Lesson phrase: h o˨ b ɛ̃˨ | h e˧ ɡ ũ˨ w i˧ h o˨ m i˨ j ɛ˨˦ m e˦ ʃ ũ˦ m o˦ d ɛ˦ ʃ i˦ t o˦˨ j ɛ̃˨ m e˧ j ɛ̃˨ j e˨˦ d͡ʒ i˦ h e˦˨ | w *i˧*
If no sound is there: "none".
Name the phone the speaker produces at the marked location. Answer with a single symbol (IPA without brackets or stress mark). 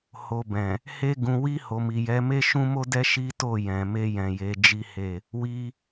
i˧